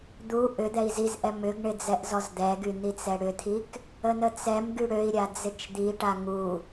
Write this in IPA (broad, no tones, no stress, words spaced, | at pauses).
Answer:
d̪u ʔʏ d̪ɛi̯zizʔɛ mʏɡɳɪ d͡zɛʔzɔzd̪ɛɡy n̪it͡sɛɽʏt̪ʰik | ənət͡sɛmɡy ɽøi̯ɾʲa d͡zɪt͡ʃd̪iʈa ŋu